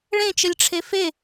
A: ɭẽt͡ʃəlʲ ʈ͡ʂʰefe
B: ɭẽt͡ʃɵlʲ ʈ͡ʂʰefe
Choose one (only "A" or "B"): A